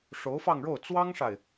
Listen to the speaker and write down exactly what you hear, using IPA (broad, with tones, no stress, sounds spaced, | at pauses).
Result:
ʂ o˧˥ ʊ̯ f ɑ˥˧ ŋ ɻ o˥˩ ʊ̯ t͡s w ɑ˥ ŋ ʂ a˨ ɪ̯